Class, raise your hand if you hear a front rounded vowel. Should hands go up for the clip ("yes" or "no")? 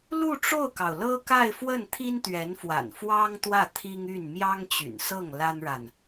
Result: yes